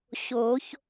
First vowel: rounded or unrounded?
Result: rounded